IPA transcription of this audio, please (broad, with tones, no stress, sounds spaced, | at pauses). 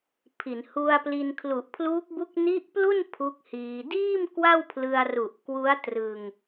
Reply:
pʰ i˩˦ n h u˧ a̯ p l i˧ n kʰ l u˨˩ ʔ pʰ l uː˦˥ k̚ b u˦˥ k̚ n i˦˥ ʔ p l u˥˩ n pʰ u˦˥ k̚ h iː˧ d iː˥˩ m k w a˥˩ w pʰ l ɯ˧ a̯ r u˨˩ ʔ k w u˦˥ a̯ t r ɯ˧ ŋ